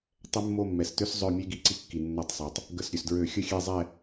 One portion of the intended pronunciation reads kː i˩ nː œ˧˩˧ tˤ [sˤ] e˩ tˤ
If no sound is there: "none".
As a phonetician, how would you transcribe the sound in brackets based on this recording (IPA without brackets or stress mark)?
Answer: sˤ